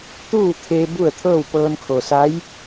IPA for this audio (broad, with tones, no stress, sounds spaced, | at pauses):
t̪ uː˥˨ t̪ʰ e˧ b u˥˨ ə̯ t̪ʰ ɤː˥˨ w p ɤː˧ n kʰ o˩ s a˧˥ j